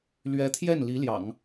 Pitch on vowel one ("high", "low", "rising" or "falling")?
rising